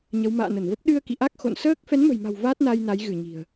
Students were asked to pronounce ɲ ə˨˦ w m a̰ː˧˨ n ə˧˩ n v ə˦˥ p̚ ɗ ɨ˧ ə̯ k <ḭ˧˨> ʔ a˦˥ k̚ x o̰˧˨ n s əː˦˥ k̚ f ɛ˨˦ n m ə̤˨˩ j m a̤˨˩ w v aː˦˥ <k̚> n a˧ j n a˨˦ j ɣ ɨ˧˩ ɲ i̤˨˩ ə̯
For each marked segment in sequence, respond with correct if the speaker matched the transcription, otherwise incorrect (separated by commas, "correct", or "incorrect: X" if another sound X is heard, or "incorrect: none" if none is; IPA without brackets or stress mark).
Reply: correct, incorrect: t̚